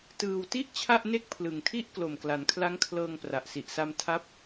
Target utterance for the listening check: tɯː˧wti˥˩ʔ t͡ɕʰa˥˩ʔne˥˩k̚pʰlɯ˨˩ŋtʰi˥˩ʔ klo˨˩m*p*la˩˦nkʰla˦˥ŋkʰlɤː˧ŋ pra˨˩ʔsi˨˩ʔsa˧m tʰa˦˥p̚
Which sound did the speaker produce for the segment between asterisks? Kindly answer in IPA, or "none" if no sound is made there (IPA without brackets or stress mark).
k